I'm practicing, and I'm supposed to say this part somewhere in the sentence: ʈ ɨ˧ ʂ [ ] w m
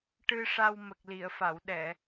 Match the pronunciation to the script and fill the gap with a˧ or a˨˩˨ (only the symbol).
a˧